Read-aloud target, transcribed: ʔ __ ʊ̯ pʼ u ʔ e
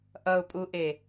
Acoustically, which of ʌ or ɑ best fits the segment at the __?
ʌ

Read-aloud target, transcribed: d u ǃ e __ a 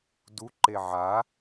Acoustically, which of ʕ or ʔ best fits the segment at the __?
ʕ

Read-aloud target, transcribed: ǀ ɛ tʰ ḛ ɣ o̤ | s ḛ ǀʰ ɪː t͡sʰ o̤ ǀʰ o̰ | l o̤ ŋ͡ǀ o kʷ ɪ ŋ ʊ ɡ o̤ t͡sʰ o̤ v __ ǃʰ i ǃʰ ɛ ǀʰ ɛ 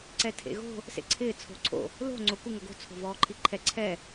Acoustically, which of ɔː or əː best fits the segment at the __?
ɔː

